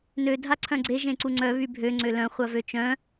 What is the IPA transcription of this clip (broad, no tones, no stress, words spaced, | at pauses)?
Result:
nø dʱaǀʰœ̃ɡ͡ǀe ʒẽǀuŋ͡ǀœ βybʱø ŋ͡ǀølœ̃ χʷavøt͡ʃœ̃